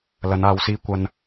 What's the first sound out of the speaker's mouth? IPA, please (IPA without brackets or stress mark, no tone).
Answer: l